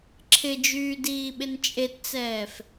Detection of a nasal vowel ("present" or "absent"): absent